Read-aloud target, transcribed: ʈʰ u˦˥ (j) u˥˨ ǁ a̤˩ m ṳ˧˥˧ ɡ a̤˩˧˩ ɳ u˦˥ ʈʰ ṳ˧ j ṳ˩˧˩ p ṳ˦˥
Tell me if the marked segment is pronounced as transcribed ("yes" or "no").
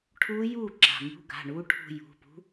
yes